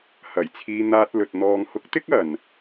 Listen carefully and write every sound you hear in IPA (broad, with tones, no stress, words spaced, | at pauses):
hɐ˨˩jt͡sʰiː˧n̪aː˧t̚lɵ˨t̚ n̪ɔː˨ŋhʊ˨˥k̚t̪ɪ˥k̚ ɐ˨n